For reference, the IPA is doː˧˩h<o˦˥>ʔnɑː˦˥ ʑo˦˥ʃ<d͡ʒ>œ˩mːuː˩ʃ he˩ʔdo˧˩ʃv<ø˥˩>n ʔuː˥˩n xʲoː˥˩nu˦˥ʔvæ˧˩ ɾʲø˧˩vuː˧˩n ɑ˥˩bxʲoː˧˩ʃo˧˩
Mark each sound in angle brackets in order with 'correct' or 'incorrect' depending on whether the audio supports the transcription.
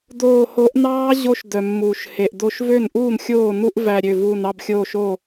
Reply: incorrect: o˨˦, incorrect: d, correct

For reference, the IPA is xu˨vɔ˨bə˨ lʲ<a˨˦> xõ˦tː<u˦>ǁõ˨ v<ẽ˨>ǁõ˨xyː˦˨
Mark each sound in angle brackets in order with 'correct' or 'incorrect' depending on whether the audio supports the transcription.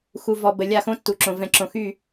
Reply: incorrect: a˦˨, incorrect: u˨, incorrect: ɛ̃˨

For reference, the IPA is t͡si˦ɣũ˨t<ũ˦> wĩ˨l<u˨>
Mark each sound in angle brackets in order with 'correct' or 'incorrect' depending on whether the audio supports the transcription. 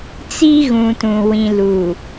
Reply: incorrect: ũ˨, correct

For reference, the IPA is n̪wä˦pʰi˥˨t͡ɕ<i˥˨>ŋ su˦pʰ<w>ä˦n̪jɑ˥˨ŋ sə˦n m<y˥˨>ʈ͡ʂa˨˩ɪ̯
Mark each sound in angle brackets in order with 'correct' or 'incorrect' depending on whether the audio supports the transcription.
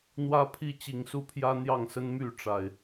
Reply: incorrect: i˨˩, incorrect: j, correct

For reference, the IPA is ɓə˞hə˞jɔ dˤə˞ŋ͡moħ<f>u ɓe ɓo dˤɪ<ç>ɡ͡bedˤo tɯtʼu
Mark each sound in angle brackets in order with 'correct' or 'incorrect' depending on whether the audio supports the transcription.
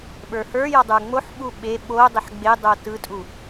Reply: incorrect: ɓ, incorrect: ħ

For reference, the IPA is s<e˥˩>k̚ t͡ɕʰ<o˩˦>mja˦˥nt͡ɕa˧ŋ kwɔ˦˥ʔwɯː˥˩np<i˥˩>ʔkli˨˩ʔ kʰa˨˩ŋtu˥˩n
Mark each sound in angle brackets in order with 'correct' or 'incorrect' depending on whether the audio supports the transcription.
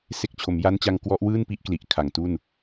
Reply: correct, correct, incorrect: i˦˥

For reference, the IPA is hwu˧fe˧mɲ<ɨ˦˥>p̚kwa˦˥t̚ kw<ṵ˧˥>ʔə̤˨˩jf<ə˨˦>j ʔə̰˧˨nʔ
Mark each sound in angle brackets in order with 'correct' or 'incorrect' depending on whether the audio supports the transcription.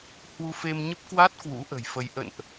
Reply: incorrect: ə˦˥, correct, incorrect: ə˧

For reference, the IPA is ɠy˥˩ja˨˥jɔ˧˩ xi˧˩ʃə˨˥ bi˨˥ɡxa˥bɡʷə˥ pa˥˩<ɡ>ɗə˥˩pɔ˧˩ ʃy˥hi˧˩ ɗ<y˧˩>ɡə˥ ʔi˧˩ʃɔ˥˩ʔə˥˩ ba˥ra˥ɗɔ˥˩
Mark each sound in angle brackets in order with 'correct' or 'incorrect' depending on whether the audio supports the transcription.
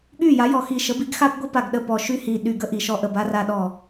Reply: correct, correct

